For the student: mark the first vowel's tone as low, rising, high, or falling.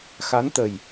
rising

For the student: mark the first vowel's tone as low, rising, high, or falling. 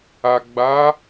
low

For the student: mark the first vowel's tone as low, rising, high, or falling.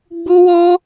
high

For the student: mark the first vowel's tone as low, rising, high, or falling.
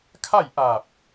falling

